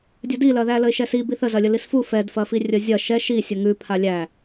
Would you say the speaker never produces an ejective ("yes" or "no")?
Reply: yes